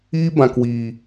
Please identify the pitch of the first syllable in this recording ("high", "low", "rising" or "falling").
high